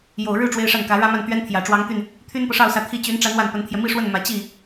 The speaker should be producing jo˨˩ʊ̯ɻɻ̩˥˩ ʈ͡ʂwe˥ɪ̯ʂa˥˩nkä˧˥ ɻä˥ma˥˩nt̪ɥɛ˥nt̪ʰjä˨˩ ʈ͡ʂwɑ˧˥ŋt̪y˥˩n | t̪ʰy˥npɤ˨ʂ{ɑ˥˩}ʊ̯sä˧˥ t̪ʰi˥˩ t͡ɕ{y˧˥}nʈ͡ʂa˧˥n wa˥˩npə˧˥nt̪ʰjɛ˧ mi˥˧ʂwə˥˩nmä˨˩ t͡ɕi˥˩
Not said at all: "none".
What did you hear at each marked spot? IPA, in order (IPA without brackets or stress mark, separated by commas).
ɑ˥˩, y˧˥